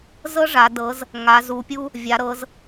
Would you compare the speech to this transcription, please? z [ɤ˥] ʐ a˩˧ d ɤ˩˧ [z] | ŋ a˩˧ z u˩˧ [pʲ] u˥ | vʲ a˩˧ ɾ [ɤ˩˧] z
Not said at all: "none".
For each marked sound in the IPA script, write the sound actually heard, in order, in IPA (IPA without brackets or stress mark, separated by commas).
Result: ɤ˥, z, pʲ, ɤ˩˧